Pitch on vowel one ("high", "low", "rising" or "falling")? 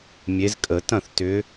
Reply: rising